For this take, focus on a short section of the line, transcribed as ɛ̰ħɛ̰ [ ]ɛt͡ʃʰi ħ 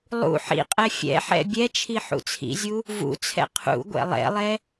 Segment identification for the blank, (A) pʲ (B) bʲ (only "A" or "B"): B